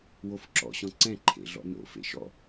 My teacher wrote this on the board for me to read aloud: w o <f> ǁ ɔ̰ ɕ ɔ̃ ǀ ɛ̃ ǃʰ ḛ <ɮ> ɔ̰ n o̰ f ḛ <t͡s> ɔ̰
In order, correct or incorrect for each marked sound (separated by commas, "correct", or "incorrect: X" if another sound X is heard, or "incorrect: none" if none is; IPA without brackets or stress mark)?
correct, correct, incorrect: ʃ